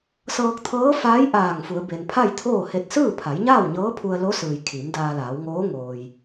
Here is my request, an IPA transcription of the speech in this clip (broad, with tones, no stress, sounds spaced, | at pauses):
s ɤː˧ k̚ t̪ʰ ɤː˧˥ f aː˧˥ j ʔ aː˧˩ ŋ f u˩˧ ə̯ b e˩ n pʰ a˥˨ j t̪ʰ oː˥˨ h e˧ t̚ s ɯː˥˨ pʰ a˩˧ j ɲ aː˥˨ w ɲ ɤː˧˥ pʰ u˧ ə̯ l o˧˥ s ɯː˩ j kʰ i˩˧ m d aː˧ l aː˩˧ w ŋ oː˧˥ ŋ oː˩ j